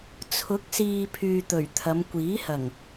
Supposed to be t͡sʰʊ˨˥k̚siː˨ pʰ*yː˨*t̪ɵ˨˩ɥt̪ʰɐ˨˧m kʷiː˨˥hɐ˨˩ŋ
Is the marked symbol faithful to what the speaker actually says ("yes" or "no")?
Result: yes